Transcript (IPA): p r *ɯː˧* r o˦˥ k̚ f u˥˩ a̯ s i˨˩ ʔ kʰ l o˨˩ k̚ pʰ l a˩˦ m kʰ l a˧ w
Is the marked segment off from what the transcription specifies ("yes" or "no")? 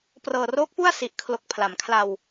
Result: yes